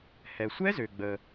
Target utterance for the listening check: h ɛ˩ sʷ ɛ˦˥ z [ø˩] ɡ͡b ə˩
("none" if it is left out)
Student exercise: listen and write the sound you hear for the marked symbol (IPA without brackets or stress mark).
ø˩